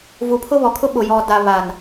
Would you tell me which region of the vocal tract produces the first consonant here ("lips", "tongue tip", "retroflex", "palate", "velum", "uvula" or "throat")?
lips